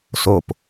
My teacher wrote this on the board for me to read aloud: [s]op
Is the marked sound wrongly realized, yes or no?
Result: no